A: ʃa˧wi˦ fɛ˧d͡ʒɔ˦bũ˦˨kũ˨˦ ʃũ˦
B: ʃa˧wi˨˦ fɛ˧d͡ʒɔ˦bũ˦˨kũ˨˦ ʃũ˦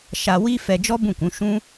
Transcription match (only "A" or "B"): A